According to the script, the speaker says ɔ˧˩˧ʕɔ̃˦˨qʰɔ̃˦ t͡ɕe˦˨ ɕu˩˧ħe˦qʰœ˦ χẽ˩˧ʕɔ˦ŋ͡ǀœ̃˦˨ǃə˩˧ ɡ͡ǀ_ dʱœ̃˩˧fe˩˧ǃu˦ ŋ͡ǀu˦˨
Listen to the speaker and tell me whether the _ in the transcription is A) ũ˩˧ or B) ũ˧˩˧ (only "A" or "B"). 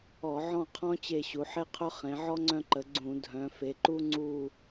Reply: B